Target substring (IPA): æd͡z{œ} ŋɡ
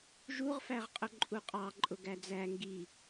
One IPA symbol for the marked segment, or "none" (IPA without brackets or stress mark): æ